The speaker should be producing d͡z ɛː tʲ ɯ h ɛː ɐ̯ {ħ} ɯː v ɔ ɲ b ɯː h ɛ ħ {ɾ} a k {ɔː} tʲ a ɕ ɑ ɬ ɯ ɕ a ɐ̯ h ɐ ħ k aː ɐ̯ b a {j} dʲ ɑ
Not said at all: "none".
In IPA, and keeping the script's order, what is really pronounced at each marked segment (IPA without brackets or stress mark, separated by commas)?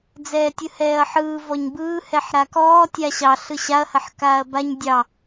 ħ, ɾ, ɔː, ɲ